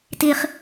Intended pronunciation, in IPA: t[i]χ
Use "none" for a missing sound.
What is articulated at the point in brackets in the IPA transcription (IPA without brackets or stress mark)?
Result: i